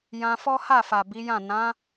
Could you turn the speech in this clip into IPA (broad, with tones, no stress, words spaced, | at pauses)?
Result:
jã˧fɔ˦ha˦˨fa˨ bi˨˦jã˦˨ nã˨˦